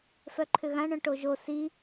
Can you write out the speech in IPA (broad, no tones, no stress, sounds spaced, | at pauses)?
f œ ǃʰ ʏ ɣ ã ɳ œ̃ ʈ o ʒ o s i